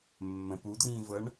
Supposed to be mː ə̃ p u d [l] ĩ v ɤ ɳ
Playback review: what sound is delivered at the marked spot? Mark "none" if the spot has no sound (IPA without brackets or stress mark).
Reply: r